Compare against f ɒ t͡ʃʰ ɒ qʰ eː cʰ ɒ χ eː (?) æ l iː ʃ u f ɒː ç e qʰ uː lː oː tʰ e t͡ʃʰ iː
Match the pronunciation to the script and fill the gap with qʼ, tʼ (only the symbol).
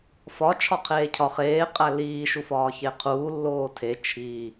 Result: qʼ